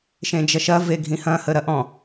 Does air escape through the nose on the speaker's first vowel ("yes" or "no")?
yes